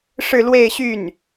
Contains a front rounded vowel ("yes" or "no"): yes